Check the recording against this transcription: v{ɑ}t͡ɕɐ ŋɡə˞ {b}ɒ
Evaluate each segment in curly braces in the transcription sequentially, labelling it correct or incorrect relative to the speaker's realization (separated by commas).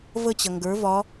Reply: incorrect, incorrect